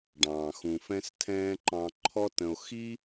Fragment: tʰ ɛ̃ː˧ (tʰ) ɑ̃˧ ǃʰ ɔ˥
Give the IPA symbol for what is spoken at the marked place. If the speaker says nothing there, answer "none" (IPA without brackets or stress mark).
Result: ǃ